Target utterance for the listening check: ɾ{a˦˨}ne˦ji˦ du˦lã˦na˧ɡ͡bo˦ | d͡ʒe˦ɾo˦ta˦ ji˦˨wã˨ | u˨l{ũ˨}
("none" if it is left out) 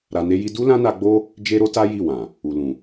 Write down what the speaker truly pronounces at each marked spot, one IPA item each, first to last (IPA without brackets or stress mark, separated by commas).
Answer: a˧, ũ˨